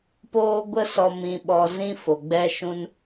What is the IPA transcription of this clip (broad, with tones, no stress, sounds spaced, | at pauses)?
p oː˦ ɡʷ ə˦ s ɔ˧ m ĩ˧ ɓ ɔ˧ z ĩ˦ f o˨ ɡ͡b ɛ˧ ʃ ũ˧ n